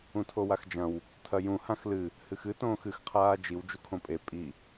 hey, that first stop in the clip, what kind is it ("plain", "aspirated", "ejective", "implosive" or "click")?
aspirated